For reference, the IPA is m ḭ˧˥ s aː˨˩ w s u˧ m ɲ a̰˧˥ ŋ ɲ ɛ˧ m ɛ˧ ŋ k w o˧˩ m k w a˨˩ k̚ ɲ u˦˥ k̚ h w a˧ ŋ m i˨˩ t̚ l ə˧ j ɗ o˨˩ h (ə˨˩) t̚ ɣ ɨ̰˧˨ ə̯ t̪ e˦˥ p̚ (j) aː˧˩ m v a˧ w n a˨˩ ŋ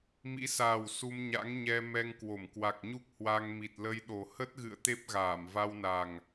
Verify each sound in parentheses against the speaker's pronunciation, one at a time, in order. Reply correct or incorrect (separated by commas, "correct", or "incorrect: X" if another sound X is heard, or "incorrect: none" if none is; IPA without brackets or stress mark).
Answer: incorrect: ə˦˥, incorrect: ɣ